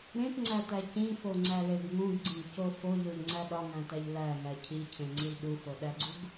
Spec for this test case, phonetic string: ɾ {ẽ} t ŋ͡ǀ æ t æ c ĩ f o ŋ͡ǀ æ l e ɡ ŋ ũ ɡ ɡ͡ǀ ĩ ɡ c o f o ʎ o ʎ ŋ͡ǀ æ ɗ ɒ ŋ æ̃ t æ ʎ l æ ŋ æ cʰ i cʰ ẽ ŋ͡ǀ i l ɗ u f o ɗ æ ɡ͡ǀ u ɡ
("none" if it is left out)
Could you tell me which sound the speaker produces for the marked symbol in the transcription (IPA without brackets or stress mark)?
ẽ